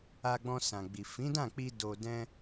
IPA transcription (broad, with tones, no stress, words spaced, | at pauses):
a˧ɡ͡bɔ̃˧sã˨ɡ͡bi˨ fĩ˨˦dã˦˨k͡pi˧ do˧ dɛ̃˧